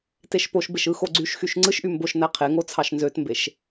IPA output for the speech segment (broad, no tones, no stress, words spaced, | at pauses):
teʃpoʃbeʃ ɯxoɡ͡ǀyʃxyʃ ŋ͡ǀɯʃʔy mboʃnæ qʰeŋo t͡sʰɑʃnzøtmbeʃ